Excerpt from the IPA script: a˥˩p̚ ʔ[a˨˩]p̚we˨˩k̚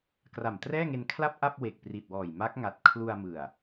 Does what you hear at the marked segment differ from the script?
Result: yes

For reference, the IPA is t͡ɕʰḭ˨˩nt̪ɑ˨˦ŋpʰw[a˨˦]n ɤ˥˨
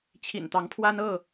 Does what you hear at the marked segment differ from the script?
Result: yes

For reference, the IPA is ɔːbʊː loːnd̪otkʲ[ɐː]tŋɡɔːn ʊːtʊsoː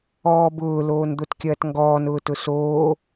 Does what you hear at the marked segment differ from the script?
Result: no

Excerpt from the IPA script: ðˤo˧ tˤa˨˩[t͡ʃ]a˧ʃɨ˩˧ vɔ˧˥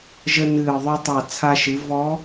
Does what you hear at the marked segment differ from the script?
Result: yes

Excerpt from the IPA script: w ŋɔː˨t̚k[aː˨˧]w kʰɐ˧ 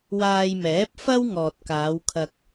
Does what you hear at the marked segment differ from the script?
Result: no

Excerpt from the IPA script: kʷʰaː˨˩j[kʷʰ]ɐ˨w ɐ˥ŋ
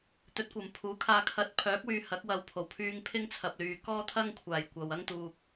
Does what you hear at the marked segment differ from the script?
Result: yes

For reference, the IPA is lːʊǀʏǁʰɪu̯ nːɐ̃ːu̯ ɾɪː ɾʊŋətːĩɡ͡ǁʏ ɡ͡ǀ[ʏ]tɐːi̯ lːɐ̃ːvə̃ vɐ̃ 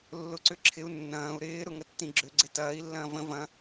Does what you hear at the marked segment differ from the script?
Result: yes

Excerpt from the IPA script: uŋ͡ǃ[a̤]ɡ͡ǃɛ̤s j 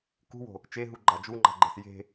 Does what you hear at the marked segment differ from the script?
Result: no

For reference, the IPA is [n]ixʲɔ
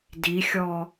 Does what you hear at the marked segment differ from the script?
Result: yes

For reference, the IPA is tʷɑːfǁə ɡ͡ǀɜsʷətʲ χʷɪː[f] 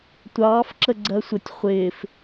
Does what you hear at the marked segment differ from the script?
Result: no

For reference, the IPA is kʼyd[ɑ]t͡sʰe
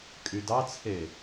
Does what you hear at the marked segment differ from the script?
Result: no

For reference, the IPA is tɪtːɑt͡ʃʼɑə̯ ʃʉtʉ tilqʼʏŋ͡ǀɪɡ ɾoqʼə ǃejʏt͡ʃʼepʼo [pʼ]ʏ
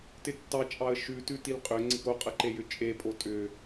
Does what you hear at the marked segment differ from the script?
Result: yes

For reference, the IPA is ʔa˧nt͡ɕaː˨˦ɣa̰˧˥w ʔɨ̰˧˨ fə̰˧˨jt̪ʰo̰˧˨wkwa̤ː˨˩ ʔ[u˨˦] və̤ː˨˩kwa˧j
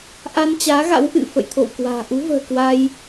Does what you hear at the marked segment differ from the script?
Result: no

